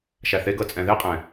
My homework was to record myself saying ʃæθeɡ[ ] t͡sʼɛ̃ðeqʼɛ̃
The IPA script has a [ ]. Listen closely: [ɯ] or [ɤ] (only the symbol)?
ɤ